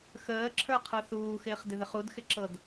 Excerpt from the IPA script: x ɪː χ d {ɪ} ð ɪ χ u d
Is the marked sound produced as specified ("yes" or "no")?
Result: yes